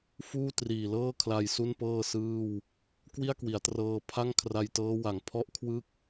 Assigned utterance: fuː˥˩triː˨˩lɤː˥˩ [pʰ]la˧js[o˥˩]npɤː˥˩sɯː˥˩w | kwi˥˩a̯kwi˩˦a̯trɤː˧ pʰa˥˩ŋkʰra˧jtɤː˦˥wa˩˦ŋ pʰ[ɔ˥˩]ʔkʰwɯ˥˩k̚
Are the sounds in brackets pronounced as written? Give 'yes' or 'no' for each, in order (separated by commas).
no, no, yes